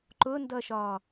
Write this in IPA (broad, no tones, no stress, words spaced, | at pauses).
ǃʊndʌʃɒ